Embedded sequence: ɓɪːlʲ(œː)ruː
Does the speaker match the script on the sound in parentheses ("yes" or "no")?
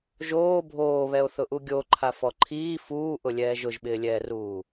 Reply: no